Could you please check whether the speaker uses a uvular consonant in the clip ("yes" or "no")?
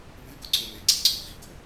no